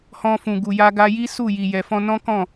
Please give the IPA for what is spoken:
h ɔ̃˧ f ũ˨ ɡ u˨ j a˧ ɡ a˧ j i˦ s u˦˨ j i˨ j ɛ˨ f ɔ̃˧ n ɔ̃˦ k ɔ̃˦˨

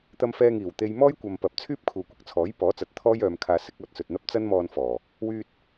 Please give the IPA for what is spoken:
t̪ ɐ˧ m f ɛː˧ ŋ iː˨˩ w t̪ e˧ j m ɔː˥ j kʷ ɐ˨ m p ɐ˨ p̚ t͡sʰ yː˥ p̚ kʰ uː˨ kʷ ɪ˥ k̚ t͡sʰ ɔː˨˥ j p ɔː˨˥ t͡s ɐ˨ t̚ t̪ʰ ɔː˥ j œː˨˧ m kʰ aː˧ s ɪ˨˥ k̚ ɔː˧ t̚ s ɵ˨ t̚ n̪ ɐ˥ p̚ t͡s ɐ˥ n m ɔː˧ n f ɔː˨˩ | w yː˧ t̚

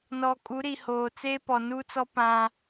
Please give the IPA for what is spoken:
n ɔ˨ kʼ u˨˦ ɾ i˨ h oː˨ t͡s eː˦ p ɔ˨ n uː˦ t͡s ɔ˦ p ã˦

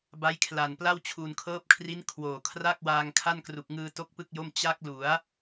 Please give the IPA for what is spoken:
b a˦˥ j kʰ l a˨˩ n p l a˥˩ w t͡ɕʰ u˨˩ n kʰ ɤː˦˥ p̚ kʰ r i˦˥ n kʰ w oː˨˩ kʰ r a˥˩ k̚ w aː˧ ŋ kʰ a˥˩ n k r u˨˩ k̚ ŋ ɯː˧ t o˥˩ k̚ p ɯ˥˩ k̚ j o˥˩ m t͡ɕ a˦˥ k̚ l u˩˦ a̯

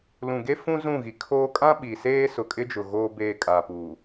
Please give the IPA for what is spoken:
l ũ˨ ɡ e˦ f ũ˦ z ũ˦˨ ɣ i˨ kʰ oː˦ kʼ ã˦ ɓ i˨ s eː˦ s ʊ˨ kʼ ɪ˦ d͡ʒ ʊ˨ ɣ oː˦ b eː˦˨ kʼ aː˨ p uː˨

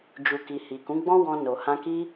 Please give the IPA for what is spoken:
d͡ʒ u˨ k i˨ h i˨ k ũ˨˦ ɡ͡b ɔ̃˦ w ɔ̃˧ n o˨ h ã˧ k i˦

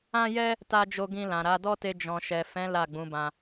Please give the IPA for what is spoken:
ã˦ j ɛ˦ | t a˧ d͡ʒ o˧ ɡ ĩ˧ l ã˨ ɾ a˨˦ d ɔ˦ t e˧ d͡ʒ ɔ̃˨ ʃ ɛ˨ f ɛ̃˨˦ l a˦˨ ɡ͡b ũ˨˦ b ã˧

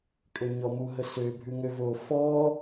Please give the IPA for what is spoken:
kʼ ø ɲ ɔ m u ɦ ə s ø bʱ ʉ ŋ ø v o f ɔ

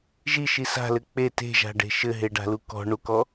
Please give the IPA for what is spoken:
ʒ i ʃ i s a̤ l ɘ k͡p e t e̤ ʒ a̤ ɖ e̤ ʃ ɘ ɦ e ɖ a̤ l u k ɔ̤ ɳ u k ɔ

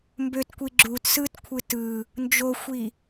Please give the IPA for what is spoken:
m b ø t kʷ i ɡ͡ǁ u t s ɯ t kʷʰ ɯ t ɯ | n d͡ʒ o xʷ i

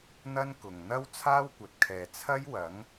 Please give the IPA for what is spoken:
n̪ ɐ˥ n k ʊ˨ ŋ n̪ ɐ˥ w t͡sʰ aː˥ w kʷ ɐ˨ t̚ kʰ ɛː˨ t͡sʰ ɐ˥ j w ɐ˨˥ ŋ

